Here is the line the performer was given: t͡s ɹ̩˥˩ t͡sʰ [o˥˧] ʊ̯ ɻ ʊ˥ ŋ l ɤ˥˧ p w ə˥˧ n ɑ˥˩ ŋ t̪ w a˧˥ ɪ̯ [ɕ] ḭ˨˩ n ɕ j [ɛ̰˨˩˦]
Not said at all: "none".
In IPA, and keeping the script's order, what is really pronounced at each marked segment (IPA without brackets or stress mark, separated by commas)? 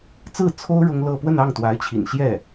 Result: o˥, t͡ɕʰ, ɛ˥˩